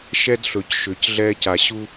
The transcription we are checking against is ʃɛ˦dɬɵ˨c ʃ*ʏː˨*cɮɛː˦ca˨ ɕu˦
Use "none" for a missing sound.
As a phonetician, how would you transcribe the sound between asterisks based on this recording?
ʏː˨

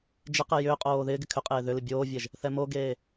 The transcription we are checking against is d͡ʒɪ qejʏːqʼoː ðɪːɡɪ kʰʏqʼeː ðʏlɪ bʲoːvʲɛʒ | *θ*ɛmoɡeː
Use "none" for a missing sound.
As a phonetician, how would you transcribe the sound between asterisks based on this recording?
θ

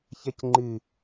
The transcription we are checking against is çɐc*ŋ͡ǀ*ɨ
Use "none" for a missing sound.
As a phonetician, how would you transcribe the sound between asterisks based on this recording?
ŋ͡ǃ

